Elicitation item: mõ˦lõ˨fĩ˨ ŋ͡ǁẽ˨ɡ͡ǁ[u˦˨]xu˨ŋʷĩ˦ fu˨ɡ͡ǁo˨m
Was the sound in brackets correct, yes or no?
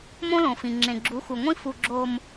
no